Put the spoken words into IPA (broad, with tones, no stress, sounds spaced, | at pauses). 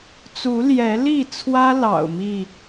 t͡s u˨˦ l j ɛ˨˦ l i˥˨ t͡sʰ w ä˦ l ɑ̰˨˩ ʊ̯ m i˥˨